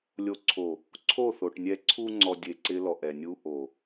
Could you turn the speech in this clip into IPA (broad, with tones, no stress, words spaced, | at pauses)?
lʲo˨ǀʰo˨ | ǀʰo˦˨θo˨ʈnʲɛ˧ ǀʰu˧ŋ͡ǀɔ˨ dʲe˧ǀɪ˦ lɔ˨ʔɛ˨ nʲu˧ʔo˨